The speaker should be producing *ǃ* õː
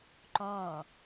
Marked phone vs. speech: correct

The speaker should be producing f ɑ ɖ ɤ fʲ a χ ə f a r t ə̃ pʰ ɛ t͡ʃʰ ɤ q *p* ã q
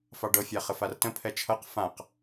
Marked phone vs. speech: incorrect: f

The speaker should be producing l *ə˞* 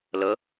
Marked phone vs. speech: incorrect: ə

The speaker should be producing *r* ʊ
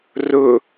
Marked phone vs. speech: correct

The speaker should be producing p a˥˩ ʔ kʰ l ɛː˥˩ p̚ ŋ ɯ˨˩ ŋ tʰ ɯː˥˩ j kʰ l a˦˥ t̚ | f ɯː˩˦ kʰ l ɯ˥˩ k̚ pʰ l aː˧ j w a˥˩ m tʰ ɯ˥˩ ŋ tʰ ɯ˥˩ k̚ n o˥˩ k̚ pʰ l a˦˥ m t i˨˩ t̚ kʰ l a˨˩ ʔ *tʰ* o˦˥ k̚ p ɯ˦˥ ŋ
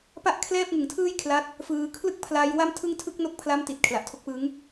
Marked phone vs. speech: correct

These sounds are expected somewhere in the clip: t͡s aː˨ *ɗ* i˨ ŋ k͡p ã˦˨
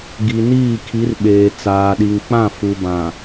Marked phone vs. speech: correct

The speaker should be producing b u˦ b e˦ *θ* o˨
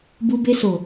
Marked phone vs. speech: incorrect: s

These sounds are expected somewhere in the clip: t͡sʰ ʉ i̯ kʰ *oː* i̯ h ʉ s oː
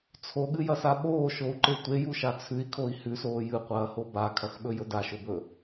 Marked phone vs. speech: incorrect: o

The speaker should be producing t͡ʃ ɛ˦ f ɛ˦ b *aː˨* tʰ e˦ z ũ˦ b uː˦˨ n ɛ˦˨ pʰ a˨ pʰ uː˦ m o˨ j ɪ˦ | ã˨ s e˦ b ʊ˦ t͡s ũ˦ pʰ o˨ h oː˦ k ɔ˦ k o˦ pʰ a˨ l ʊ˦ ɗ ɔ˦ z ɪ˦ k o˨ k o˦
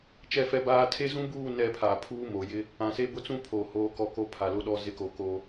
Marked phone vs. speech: incorrect: aː˦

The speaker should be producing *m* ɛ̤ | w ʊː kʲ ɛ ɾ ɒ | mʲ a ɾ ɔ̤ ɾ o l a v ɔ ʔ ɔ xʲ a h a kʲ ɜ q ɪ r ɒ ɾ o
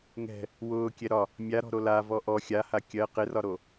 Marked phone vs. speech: incorrect: ŋ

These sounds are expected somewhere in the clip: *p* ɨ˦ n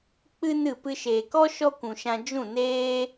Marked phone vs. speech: incorrect: k͡p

